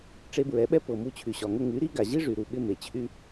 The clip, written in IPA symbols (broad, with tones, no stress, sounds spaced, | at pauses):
ʈ͡ʂ e˧ b ɹ ɛ˨˦ ɓ ɛ˦ p ɤ˨ m u˧ t͡ɕʰ y˨ ɕ ɒ˨ ŋ ə˧ ŋ y˨˦ ɾ i˦ ɡ a˨ ʑ i˦ ʐ y˨ ɾ u˨ ɓ ɪ˧ m e˨ t͡ɕʰ y˦